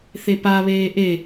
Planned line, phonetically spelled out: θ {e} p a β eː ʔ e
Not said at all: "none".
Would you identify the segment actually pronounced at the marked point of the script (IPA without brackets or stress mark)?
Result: e